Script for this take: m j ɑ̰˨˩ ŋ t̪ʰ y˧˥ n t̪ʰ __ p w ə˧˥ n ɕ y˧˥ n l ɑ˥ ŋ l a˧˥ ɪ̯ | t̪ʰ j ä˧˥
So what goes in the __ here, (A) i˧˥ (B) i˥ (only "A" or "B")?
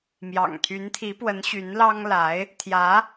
A